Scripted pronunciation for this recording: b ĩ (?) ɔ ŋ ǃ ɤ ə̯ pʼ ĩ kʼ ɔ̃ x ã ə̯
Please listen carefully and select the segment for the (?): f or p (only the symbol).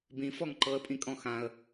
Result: f